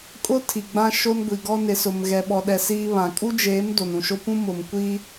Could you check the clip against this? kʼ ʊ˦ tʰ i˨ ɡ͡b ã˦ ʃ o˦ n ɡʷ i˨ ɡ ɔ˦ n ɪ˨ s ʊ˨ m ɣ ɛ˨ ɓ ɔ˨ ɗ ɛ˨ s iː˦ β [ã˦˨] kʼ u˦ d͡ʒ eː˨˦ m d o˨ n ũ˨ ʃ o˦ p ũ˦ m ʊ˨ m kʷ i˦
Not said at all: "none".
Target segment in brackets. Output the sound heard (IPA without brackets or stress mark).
ã˨